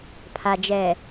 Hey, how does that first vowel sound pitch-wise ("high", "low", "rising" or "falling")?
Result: low